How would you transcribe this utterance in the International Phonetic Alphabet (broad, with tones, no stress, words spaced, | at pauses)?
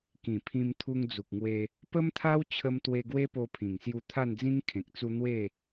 kĩ˨˩ pʰĩ˧mt̪ʰu˧ŋd͡zu˨k̚ŋwe˧ | pə˦mt̪ʰa˦w t͡ɕʰə˧mt̪we˧ ɡwe˦po˧pʰĩ˨˩ŋsju˧ t̪ʰa˥˧nd͡zĩ˦ŋ kʰẽ˨k̚t͡su˧ n̪we˥˧